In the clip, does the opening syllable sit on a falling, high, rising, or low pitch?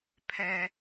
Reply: low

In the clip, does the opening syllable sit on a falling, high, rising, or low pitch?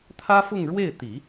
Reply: high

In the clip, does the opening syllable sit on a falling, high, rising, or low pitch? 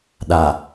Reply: low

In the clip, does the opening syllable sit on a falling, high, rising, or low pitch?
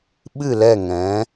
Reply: falling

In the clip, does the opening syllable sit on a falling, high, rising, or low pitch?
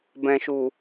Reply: low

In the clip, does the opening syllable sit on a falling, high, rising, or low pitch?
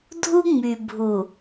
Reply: high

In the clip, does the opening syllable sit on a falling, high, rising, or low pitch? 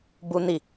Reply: high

